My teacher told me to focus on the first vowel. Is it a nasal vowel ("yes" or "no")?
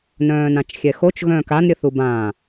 yes